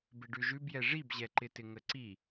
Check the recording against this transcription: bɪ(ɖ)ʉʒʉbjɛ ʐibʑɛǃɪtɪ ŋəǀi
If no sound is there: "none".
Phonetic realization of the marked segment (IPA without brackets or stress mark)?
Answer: ɖ